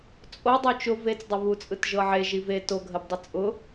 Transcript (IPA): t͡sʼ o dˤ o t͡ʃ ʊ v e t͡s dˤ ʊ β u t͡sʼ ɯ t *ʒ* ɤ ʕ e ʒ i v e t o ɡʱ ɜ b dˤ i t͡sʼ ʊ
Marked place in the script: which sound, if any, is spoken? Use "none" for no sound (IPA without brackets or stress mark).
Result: ʒ